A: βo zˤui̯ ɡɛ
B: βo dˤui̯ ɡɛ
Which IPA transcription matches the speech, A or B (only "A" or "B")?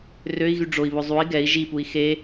A